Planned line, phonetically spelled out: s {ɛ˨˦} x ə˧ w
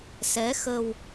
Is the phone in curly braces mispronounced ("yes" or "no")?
no